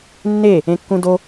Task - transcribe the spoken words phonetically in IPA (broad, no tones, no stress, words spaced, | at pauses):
nːe | ẽkːũdo